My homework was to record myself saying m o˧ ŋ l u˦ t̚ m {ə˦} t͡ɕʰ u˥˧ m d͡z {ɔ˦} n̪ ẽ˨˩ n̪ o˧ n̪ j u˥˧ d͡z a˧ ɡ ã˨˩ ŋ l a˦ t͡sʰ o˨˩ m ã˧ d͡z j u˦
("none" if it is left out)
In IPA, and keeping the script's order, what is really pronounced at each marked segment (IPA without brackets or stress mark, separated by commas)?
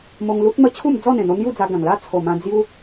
ə˦, ɔ˥˧